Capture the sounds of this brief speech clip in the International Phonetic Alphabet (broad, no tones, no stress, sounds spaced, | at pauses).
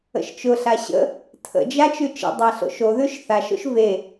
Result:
ə̰ ʃ t͡ʃ ʊ ɬ a ɕ ə̰ | tʰ ə̰ d͡ʒ a t͡ʃ ʉ t͡ʃ ə̰ dˤ a ɬ o̰ ʃ o ð ʉ ʃ θ a ʃ o̰ ʃ v e